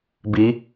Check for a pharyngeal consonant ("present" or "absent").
absent